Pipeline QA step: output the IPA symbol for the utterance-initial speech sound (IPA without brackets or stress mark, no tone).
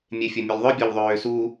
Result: mʲ